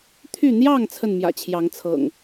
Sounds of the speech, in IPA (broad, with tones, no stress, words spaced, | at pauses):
t̪ʰy˥˨ n̪jɑ˥˨ŋ t͡sʰə˥˨nmjä̰˨˩t͡ɕʰjɑ˨˦ŋt͡sʰɤ̰˨˩ŋ